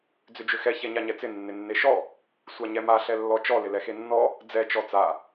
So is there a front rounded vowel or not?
yes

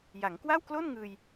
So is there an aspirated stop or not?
no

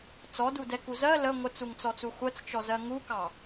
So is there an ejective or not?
no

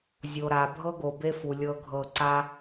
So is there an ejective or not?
no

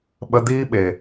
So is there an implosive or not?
yes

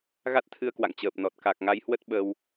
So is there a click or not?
no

